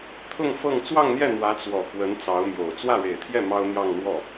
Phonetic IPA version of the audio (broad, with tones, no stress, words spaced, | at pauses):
t̪ʰʊ˥˧ŋ fɤ˥˧ŋ t͡swɑ˥˧ŋn̪jɛ˥˩ n̪wä˧˥t͡swɔ˨˩ kwə˧˥n t͡sɑ˧˥ʊ̯mjo˨˩ʊ̯ t͡swä˥˩ɻe˨˩ɪ̯t̪ʰjɛ˥˩ mɑ˥ʊ̯n̪jɑ˥˧ŋ n̪wɔ˥˩